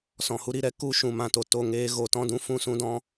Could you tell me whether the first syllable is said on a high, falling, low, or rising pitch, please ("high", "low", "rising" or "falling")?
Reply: low